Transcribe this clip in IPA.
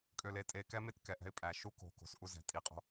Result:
kʼ ø˨ l e˨ tʼ e˨ k ɛ˦ m e˦ t k ɛ˨ ʔ ɛ̤˦ ɪ̯ pʼ æ˨ ʃ u˦ k o̤˨ k o̤˨ s ʔ u˦ z ɛ̤˨˦ tʼ i˨ qʼ o̤˦

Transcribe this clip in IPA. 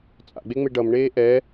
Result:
t͡sʼ a̰ ɡ͡b e ŋ͡m e ɖ ʌ m ɳ eː ʔ ɛ

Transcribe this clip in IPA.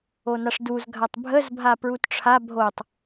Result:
o n a ʂ d u z ɡʱ a tˤ bʱ ə z bʱ a p ɹ u t ʈ͡ʂʰ a bʱ o tˤ

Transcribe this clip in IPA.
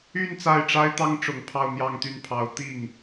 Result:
y˥˧ n t͡s a˥˩ ɪ̯ ʈ͡ʂ a˥ ɪ̯ t̪ ɑ˥ ŋ ʈ͡ʂ ʊ˨˩ ŋ pʰ ɑ˥˧ ʊ̯ n̪ j ɑ˥˧ ŋ t̪ y˥˩ n pʰ ɑ˧˥ ʊ̯ t̪ i˥˩ ŋ

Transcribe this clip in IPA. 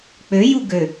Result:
k͡p ø j u ɡ ø

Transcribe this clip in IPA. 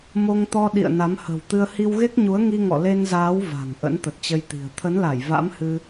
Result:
m o˧ ŋ t̪ ɔ˧ ɗ ḭ˧˨ ə̯ n a˨˦ m h ə̤ː˨˩ w t̪ ɨ˧ ə̯ h i˧ w ɣ e˦˥ k̚ ɲ u˨˦ ə̯ ŋ i˧ ŋ ɔ̰˧˨ l e˧ n z aː˨˦ w v a̤˨˩ ŋ ʔ ə̰˧˥ n t̪ ə˨˩ t̚ t͡ɕ ə˧ j t̪ i̤˨˩ ə̯ t̪ʰ ə˨˦ n l a˧˩ j v a̰˧˥ m h ɨ˧

